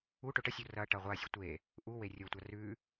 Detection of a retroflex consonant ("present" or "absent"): present